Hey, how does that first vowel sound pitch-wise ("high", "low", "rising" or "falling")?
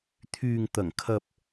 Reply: low